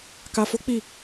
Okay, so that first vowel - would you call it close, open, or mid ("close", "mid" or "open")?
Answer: open